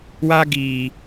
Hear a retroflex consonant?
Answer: no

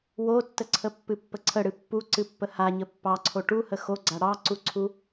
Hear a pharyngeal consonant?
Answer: no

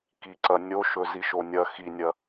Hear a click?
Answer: yes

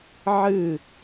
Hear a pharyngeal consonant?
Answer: yes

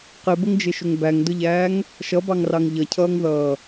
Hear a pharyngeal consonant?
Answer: no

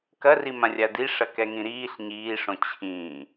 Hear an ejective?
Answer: no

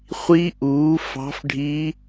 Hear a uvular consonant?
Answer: yes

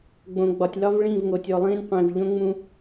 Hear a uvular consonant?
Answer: yes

